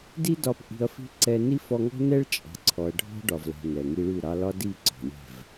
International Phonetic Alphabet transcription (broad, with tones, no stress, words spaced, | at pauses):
di˦ dɒ˧p ʔi̤˧ɐ̯fi̤˦ ǀɛ˧ ni˦fɔ˧ŋɔ̤˦ nɛ˦ɭt͡ʃʼɑ̤˨ǀʰɔ˨ɐ̯ ɖʱɔ̤˦ɖɒ˨vlɛ̤˨ nɛ˨ŋi˧ɭʉ˦˨ ɾɑ˧lɒ˦di˦˨ ǀɔ̤˨lʲɛ̤˦˨v